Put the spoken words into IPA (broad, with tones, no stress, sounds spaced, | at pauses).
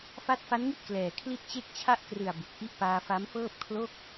f a˦˥ t̚ f a˦˥ n ŋ i˥˩ t̚ k l ɛː˨˩ kʰ l i˥˩ t̚ t͡ɕ e˥˩ k̚ t͡ɕʰ a˥˩ ʔ k r ɯ˨˩ a̯ b u˨˩ k̚ ʔ i˥˩ ʔ p aː˧ f a˦˥ m f ɤː˥˩ p̚ kʰ l o˥˩ k̚